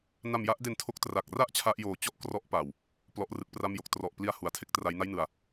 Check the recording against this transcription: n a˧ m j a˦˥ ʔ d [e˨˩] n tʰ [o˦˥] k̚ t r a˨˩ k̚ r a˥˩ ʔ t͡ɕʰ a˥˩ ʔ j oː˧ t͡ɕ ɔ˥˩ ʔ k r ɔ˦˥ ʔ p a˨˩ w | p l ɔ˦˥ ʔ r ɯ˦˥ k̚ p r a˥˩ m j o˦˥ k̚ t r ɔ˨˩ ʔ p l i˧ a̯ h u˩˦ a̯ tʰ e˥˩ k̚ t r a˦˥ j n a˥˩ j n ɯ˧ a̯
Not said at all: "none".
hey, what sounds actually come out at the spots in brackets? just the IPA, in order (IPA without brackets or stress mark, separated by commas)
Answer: e˧, o˦˥